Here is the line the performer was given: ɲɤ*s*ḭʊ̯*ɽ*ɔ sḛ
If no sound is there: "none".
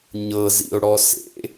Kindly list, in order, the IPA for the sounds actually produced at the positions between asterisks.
z, ɽ

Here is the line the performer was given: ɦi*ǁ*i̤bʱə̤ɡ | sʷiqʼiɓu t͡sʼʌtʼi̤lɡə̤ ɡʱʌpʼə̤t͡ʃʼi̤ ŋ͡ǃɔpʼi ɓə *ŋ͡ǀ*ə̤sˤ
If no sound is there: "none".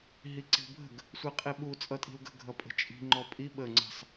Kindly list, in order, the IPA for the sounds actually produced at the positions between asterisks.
ǀ, ŋ͡ǀ

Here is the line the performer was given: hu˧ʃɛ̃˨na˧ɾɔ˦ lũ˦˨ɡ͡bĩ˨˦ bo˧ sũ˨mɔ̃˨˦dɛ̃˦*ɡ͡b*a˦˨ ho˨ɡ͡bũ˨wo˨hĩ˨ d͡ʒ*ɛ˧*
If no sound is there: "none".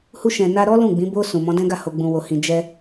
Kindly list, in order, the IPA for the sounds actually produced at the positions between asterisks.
ɡ, ɛ˧

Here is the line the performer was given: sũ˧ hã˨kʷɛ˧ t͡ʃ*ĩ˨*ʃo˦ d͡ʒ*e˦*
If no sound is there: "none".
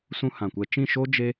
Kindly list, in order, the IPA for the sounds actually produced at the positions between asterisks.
ĩ˦˨, e˦

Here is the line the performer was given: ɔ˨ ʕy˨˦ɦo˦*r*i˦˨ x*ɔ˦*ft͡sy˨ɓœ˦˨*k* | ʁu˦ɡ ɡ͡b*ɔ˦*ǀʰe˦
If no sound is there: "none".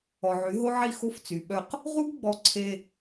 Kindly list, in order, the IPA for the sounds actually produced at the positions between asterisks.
ʕ, o˦, q, ɔ˦

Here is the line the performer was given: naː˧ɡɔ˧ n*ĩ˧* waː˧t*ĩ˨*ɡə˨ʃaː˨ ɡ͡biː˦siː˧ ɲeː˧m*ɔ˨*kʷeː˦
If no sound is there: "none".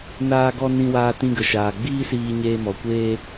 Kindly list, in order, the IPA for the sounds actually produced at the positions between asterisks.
ĩ˧, ĩ˧, ɔ˨

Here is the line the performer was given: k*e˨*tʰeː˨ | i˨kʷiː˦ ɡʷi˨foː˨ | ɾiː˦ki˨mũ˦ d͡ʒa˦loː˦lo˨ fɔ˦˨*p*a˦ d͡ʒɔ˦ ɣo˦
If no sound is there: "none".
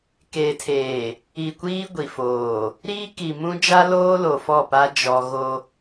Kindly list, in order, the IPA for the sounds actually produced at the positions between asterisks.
e˨, p

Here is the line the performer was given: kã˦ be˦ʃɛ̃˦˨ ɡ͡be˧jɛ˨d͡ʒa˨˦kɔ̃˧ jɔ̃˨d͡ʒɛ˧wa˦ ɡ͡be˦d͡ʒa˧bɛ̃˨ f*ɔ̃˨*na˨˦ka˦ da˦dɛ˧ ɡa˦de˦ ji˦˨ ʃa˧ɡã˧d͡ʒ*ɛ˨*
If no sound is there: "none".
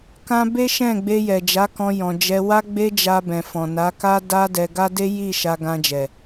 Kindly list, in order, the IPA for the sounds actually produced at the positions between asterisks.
ɔ̃˨, ɛ˨

